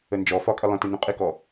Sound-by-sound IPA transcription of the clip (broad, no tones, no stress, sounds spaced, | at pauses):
ə n d͡ʒ ɔ f ɒ kʼ ə lˠ ə̃ t ɪ n ũ qʼ ɪ k ɔ